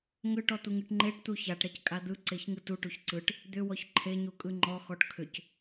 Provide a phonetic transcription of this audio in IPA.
ŋ ʏ ʈ ɔ t̪ u ŋ ɯ ʈ ŋ͡ǃ e ʈ t̪ u ç a ʈ ɾ ɛ c kʼ a d̪ ɯ ǀ e ç ŋ ɯ t u ʈ u ç ǀ ɯ ʈ | d̪ ʏ w ɔ ç ǃʰ e ɲ u kʼ ɯ ŋ͡ǃ ɔ x ɔ ʈ kʰ ʏ c

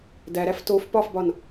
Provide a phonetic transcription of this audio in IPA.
d æ ɾ æ f t o f p ɒ f b ɒ n

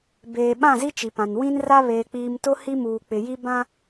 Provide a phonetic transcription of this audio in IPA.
b eː˨ ɓ ã˦˨ z i˦ t͡ʃ i˨ p ã˨ n w ĩ˦ n r a˦ β eː˨ k͡p iː˨ m t ʊ˦ h i˦ m uː˨ k͡p ɪ˨ j i˦ b ã˦

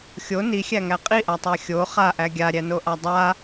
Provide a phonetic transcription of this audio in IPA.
xʲ o n i xʲ æ ŋ æ qʼ i ʔ a tˤ æ xʲ o χ a ʔ æ ɡʲ a ɾʲ æ n o ʔ a dˤ a

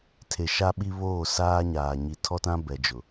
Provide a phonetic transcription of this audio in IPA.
tʰ e˨ ʃ a˦ ɓ i˦ β oː˦˨ s aː˦ ɲ aː˨ ɲ i˨ tʰ ɔ˦ t ã˦ b ɛ˨ d͡ʒ ʊ˨

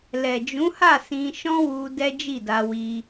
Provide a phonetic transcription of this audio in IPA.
l ɛ˨ d͡ʒ ũ˨˦ h a˦˨ s ĩ˧ ʃ ɔ̃˦ w u˧ d ɛ˦ d͡ʒ i˦˨ d a˧ w i˧

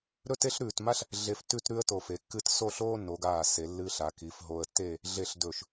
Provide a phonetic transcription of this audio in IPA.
ɾ ɵ˥ t e˥ ɬ ɾ ʉː˧˩ t m a˥ ɬ | ɮ e˧ f t ʉ˥˧ t ɾ ʉ˥ ə̯ t o˧˩ f e˩˧ kː ɨ˥˧ t s o˥˧ ɬ oː˥ nː o˩˧ ɡ aː˧˩ s e˩˧ lː ɨː˧ ɬ a˩˧ k i˩˧ f ɦ o˧ ə̯ tː e˥˧ | ɮ e˧ ɬ d ɵ˧˩ ʃ

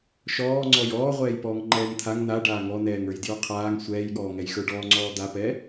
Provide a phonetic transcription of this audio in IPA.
ʃ ɔː ŋ͡ǀ ɔ j ɔː ʁʷ ɛː j p ɔː ŋ ŋ͡ǃ ɛː ŋ t̪ʰ a ŋ n a ɖ aː ŋ ɔ n ɛː ŋ ə˞ j d j ə˞ qʰ aː ŋ sʷ ɛː j ɠ ɔː ŋ ɛ j x ə˞ ɖ ɔː ŋ͡ǀ ɔː d̪ a p ɛ

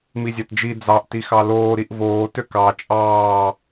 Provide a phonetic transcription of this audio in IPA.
m i zʲ a t d͡ʒ i d͡z ɑ ʔ t i x ɑ l oː ɾ i ʔ v oː t ø k ɑ t͡ʃʼ ɑː

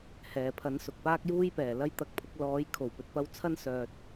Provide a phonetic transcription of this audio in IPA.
h ɛː˨ pʰ ɐ˨˥ n s ʊ˨ k̚ p aː˥ k̚ j uː˥ j p ɛː˨˩ l ɐ˥ j t̪ ɐ˧ k̚ pʰ ʊ˨˥ k̚ l ɔː˨˥ j kʰ o˨˩ w p ɵ˨ t̚ p ɐ˥ w t͡sʰ ɐ˥ n s œː˧ t̚

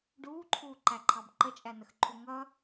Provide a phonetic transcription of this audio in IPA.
ɖ uː ǃʰ uː ǃ æ ǃʰ ɑ b ǃ ə t͡ʃʼ æ n ə x ǃʰ u ŋ ʌ

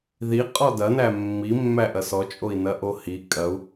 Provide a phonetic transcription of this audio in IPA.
ð i qʼ ɔ d ɐ n æ mː i mː æ ʔ ɐ s ɔ t͡ʃʼ o i̯ n ɐ ʔ o h i kʼ ɐ u̯

